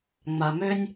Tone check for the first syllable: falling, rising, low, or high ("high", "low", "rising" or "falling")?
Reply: low